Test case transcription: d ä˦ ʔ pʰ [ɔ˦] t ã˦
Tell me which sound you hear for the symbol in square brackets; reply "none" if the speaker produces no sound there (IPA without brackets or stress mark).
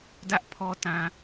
ɔ˦